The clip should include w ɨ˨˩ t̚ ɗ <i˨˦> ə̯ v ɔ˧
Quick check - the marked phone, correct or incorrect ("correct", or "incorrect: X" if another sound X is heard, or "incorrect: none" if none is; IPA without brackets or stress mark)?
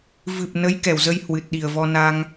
incorrect: i˨˩